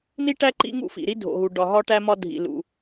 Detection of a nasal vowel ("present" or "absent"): absent